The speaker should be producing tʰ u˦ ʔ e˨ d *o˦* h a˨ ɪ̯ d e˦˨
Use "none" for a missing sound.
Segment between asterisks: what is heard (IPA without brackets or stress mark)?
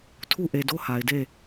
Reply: o˦